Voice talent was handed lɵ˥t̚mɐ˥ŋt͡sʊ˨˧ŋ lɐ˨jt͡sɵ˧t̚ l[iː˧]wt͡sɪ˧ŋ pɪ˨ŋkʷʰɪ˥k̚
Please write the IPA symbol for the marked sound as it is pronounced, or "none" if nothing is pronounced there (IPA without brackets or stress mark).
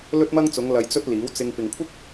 iː˨˥